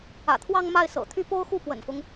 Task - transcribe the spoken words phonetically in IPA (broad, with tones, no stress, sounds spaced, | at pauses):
ä̰˨˩ t̪ʰ w ɑ˥˧ ŋ m a˥˩ ɪ̯ s ɤ̰˨˩ t̪ʰ y˥˩ p o˥ ʊ̯ x u˥˩ p w ə̰˨˩ n f ʊ˦ ŋ